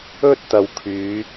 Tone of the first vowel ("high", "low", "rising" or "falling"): high